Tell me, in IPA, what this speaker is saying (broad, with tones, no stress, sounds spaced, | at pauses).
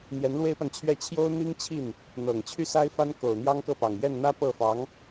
n̪ j ɛ˧˥ n l w e˥ ɪ̯ p a˨ n t͡ɕʰ ɥ ɛ˥˩ t͡ɕʰ j o˥ ʊ̯ n̪ i˥ ŋ t͡ɕʰ i˥˩ n | n̪ ɤ˨˩ ŋ t͡ɕʰ y˥˩ s a˥ ɪ̯ f a˥ n k o˨˩ ʊ̯ n̪ j ɑ˥ ŋ k ɤ˥˩ p ɑ˨˩ ŋ j ɛ˥˩ n n̪ ä˥ p ɤ˥˩ f ɑ˧˥ ŋ